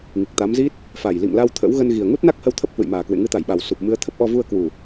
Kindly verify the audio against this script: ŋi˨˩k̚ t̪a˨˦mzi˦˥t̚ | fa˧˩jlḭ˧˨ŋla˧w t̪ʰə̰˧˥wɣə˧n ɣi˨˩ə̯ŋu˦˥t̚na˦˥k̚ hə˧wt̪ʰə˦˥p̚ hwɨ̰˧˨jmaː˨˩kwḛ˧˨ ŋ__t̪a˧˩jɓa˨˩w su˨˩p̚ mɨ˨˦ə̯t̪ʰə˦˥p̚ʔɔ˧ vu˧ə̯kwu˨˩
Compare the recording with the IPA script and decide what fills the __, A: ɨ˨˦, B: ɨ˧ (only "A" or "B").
A